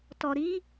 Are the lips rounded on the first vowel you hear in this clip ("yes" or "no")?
yes